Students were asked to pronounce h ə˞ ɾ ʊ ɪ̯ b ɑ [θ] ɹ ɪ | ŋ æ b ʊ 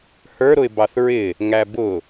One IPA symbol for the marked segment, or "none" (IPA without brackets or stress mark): θ